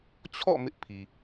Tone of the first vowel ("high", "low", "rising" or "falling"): falling